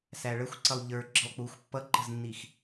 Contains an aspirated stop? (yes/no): no